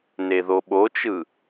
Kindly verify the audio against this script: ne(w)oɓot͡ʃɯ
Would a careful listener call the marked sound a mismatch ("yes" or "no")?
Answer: yes